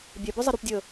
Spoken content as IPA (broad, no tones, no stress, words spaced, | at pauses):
bʲɛ bœzˤɛɾupdʲəː